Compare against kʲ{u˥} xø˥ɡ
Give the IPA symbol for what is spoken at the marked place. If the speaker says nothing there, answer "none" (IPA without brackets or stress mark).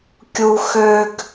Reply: u˥